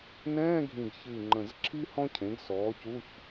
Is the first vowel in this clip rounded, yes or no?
no